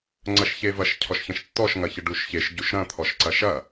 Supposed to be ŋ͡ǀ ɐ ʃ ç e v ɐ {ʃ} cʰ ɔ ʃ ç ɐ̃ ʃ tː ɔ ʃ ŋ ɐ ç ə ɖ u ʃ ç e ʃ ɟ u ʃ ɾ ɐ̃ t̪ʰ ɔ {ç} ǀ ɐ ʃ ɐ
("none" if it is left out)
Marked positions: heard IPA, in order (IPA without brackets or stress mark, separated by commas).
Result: ʃ, ʃ